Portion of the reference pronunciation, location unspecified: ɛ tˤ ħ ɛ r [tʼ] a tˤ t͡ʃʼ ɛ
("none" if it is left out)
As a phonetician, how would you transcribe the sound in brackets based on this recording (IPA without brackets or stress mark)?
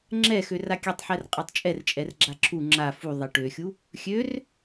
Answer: qʼ